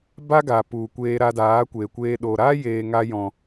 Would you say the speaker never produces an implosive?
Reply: no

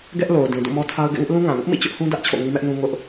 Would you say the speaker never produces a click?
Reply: yes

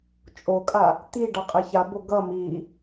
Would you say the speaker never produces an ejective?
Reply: no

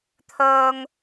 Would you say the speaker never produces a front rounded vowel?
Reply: no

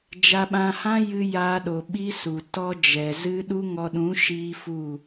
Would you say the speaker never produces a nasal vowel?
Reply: no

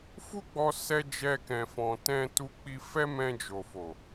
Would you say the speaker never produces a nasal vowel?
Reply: no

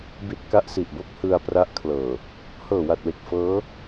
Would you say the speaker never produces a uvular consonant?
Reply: yes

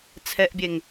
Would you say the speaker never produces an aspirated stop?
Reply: no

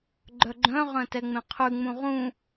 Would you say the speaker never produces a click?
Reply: no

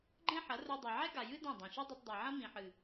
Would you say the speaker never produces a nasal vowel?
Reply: no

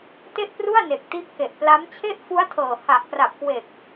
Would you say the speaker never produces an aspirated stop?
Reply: no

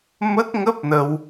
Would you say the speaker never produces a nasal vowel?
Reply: yes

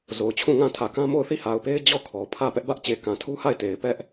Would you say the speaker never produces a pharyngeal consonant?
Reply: yes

